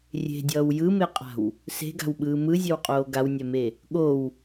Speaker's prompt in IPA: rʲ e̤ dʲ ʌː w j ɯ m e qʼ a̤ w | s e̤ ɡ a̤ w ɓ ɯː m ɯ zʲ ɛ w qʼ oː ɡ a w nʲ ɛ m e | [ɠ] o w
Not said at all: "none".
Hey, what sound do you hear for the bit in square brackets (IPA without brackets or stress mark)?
ɠ